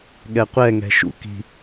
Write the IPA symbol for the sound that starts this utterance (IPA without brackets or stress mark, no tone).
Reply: ɠ